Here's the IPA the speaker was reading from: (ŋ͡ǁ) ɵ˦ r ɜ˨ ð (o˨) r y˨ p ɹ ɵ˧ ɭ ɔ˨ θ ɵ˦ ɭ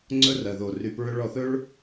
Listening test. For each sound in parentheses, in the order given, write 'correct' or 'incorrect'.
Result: incorrect: ŋ͡ǀ, correct

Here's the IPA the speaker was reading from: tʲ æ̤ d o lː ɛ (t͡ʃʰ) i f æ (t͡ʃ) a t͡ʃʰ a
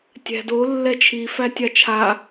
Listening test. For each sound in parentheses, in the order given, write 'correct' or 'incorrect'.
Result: correct, incorrect: tʲ

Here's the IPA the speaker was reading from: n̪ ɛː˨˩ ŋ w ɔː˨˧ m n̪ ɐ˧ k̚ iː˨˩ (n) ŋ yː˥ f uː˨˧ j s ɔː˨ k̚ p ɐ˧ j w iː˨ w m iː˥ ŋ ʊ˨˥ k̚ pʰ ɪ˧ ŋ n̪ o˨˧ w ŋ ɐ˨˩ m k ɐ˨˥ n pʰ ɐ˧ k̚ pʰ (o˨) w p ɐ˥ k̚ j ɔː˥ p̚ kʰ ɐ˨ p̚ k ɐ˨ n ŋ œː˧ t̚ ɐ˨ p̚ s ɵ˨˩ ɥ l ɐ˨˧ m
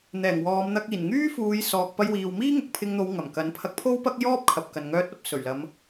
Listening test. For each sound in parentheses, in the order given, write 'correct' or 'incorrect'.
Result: correct, incorrect: o˥

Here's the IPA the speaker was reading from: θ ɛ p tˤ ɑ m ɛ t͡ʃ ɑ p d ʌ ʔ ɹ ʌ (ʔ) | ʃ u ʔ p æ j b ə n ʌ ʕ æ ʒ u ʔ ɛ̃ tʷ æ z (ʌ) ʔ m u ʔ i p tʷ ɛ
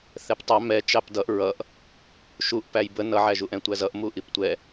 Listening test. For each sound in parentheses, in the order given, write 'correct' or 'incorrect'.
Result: correct, correct

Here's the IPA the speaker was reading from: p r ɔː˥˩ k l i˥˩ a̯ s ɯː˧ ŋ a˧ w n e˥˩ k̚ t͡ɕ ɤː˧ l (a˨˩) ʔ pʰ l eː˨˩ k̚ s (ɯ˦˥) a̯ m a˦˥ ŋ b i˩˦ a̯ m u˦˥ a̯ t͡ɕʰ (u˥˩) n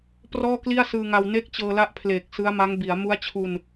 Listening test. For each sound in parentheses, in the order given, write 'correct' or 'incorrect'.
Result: incorrect: a˦˥, correct, incorrect: u˧

